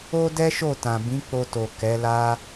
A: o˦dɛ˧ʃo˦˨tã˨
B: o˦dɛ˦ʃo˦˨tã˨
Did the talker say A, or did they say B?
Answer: B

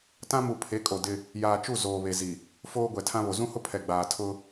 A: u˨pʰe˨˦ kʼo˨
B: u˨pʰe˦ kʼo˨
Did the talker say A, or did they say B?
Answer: A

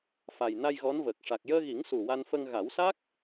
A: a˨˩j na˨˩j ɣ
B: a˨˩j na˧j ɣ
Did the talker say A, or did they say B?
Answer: B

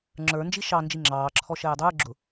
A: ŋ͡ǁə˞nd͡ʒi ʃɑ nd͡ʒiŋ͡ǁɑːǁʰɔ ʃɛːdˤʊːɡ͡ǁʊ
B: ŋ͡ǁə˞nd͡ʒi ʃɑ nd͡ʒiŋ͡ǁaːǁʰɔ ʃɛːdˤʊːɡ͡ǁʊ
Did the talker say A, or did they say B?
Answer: A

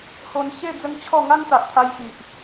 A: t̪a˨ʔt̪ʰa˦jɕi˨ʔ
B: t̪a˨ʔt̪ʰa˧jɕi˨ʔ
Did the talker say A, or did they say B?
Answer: B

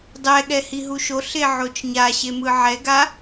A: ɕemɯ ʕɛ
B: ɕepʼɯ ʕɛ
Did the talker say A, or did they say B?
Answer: A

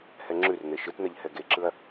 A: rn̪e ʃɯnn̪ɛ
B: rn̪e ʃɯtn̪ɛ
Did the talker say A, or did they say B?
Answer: B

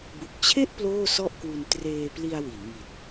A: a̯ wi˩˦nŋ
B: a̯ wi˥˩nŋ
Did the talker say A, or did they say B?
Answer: A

